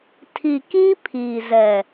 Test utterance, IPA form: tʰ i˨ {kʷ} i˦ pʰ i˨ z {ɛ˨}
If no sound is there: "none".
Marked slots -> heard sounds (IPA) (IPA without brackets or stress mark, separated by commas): k, ɛ˨